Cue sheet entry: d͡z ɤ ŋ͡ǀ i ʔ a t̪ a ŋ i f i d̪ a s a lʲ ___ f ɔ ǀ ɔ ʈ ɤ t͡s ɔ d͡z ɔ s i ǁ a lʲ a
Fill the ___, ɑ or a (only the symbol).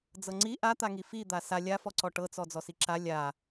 a